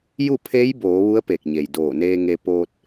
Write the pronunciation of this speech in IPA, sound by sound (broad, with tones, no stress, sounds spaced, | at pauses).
j u˥˨ pʰ e˧˥ j b oː˩˧ ʋ u˧˥ ə̯ p e˧˩ k̚ ɲ e˩ j d oː˧˩ n eː˧ ŋ e˧ p oː˧ t̚